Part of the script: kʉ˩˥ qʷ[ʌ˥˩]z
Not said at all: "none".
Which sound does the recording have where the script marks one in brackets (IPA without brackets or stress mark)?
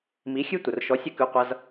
ʌ˧